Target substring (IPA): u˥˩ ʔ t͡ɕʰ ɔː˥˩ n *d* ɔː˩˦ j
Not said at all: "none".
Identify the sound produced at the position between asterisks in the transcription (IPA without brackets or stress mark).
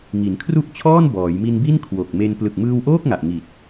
b